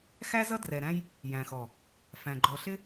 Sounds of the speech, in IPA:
x æ˦ z ʌ˦ d r ɛ˨ ɾ æ̃˦ j | j æ̃˨ x ɔ˨ | f æ̃˨ ɡ͡ǃ ɔ˨ ɬ ɪ˦

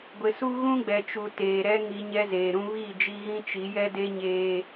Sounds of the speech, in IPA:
ɡʷ ɪ˨ s u˦ ɣ ũ˦ ɡ͡b ɛ˨ t͡ʃ u˨ t eː˨ ɾ ɛ˦ ŋ i˨˦ ɲ ɛ˦ z eː˨ ɾ ũ˦ β i˦˨ d͡ʒ i˦ ɣ ĩ˦ t͡ʃ i˨˦ j ɛ˦ d e˦ ɲ eː˦

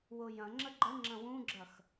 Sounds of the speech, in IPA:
w ʊ j ɐ̃ ŋ͡ǁ ə ɡ͡ǃ ə ŋ͡ǁ ɐ̃ w ũ ɡ͡ǁ ɐ x

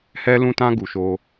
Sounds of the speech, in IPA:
h ɛ˧ l ũ˧ t ã˧ ɡ u˨ ʃ o˧

